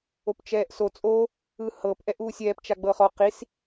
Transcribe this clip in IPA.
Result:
o p t͡ʃ ɛː ʔ s o t͡sʼ o | ɯ h ɤ p ʔ ɛ ʔ uː sʲ ɛː p t͡ʃ a ɡ͡b ɤ χ ɔ q i s

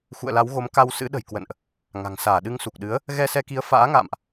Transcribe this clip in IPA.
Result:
x ṵ˧˨ ə̯ l a˨˦ w ɣ o˨˦ m k a˧ w s ɨ̰˧˥ ɗ ə̤˨˩ j k w ə̰˧˨ n ʔ | ŋ a̤˨˩ ŋ s aː˧˩ ɗ ɨ˧ ŋ s u˨˩ k̚ ɗ ɨ˨˦ ə̯ | ɣ ɛ˧ s ɛ˧ k i˨˦ ə̯ f a̰ː˧˥ ŋ a̰ː˧˨ m ʔ

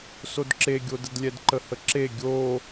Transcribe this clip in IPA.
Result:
s o d ǁ e ɡʲ o d ə d lʲ ɛ d ǃ ə h ə ǁ e ɡʲ o

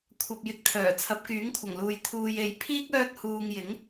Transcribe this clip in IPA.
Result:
kʷʰ ɐ˧ p̚ j ɪ˧ k̚ t̪ʰ œː˨˩ t͡sʰ ɐ˨˥ p̚ k yː˨˥ ŋ kʷʰ ɐ˨˩ ŋ l uː˨ j t̪ʰ uː˨ j e˨ j pʰ iː˥ k̚ œː˥ t̚ h uː˧ ŋ j ɪ˨˥ ŋ

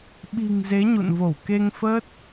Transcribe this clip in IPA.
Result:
ɓ i̤˨˩ ŋ z e˨˦ ɲ ṵ˧˨ n v o˧˩ w k e˧ ŋ f əː˦˥ t̚

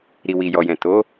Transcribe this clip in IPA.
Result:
ɾ i˨ w i˨ j ɔ˨ j ɛ̃˨ t o˨˦

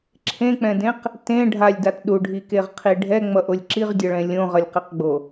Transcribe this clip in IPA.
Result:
ǁʰ ẽ k͡p ɛ̃ d ẽ q | t ẽ ɖʱ a lʲ d a t ɗ u ɖʱ i k e ʁ qʰ i ɖʱ ɛ ŋ͡m ʌ ʔ o lʲ ǁ i ʁ dʲ ʌ ɭ ɛ̃ lʲ õ ʁ ʌ lʲ q i q ɡ͡b o

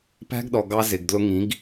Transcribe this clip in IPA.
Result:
p æ̤˦ ɡ ɗ ɔ˨ ɡ ɑ˦ z ɪ˨ ɡ d l ʊ˦ ŋ ĩ˨˦ ɡ

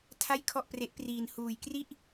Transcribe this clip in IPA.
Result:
tʰ a˥˩ j kʰ ɔ˥˩ ʔ p r e˦˥ ʔ p r iː˧ n h uː˧ j k r i˥˩ ʔ

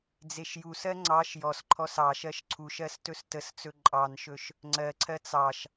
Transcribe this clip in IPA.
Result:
d͡z e ʃ j u s ɜ ŋ͡ǀ ɑ ʃ j ɔ s ǃʰ ɔ s ɑ ʃ ɜ ʃ ǀʰ u ʃ ɜ s t ɵ s t ə s t͡s ɵ ǃʼ ɑ n ʃ ɵ ʃ | ŋ͡ǀ ɜ ǀʰ ɜ t͡s ɑ ʃ

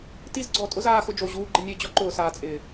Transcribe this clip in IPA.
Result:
t i˦ z ɡ͡ǀ ɔ˧ tʼ ʊ˦ z aː˧ x ʊ˧ d͡ʒ o˨ ʑ uː˧ ɡ͡ǃ ɪ˧ nʲ ɪː˨ d͡ʑ ɔ˦ ǃ ʊː˨ s aː˨ t͡sʼ ɪː˨

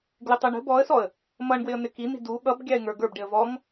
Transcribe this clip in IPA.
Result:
ɡ l ɪ tˤ u ɳ ə̤ b ɔ ə̯ s ɔ ə̯ | m ʌ ɳ ɡ w ɪ ə̯ n̪ ɪ k i n̪ i̤ d u ɠ ʌ b ɡʲ ɑ ɪ̯ ŋ ə˞ ɡ ə˞ b ɖ ɪ ə̯ v ɔ ŋ

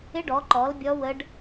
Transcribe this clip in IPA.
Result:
ɪ˦ ɖ ɔ˨˦ ǃ ɔ˨˦ l bʲ ɔ˦ w ə˦ ɖ

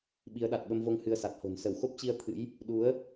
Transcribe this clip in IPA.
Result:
ɓ i˨˦ ə̯ ɗ a˨˩ t̚ ɓ ə˧ m v o˧ ŋ h ɨ˧ ə̯ s a˨˩ t̚ h o̤˨˩ n s ə˧˩ w x o˦˥ p̚ t͡ɕ i˧ ə̯ t̪ʰ ɨ̰˧˥ j | ɗ u˨˦ ə̯

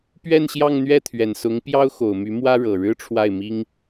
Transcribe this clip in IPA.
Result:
p ɥ ɛ˥˧ n ɕ j ɑ˥˧ ŋ n̪ ɥ ɛ˥˩ t̪ʰ ɥ ɛ˨˩ n s ʊ˧˥ ŋ p j ɑ˥ ʊ̯ x o˨˩ ʊ̯ m y˧˥ m w ä˥ ɻ ɤ˨˩ ɻ ɻ̩˥ ʈ͡ʂʰ w a˥˩ ɪ̯ m i˥ ŋ

